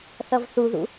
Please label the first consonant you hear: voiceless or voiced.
voiceless